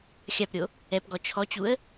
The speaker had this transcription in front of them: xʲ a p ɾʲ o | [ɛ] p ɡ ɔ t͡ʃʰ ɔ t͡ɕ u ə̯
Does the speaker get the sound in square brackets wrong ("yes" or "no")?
no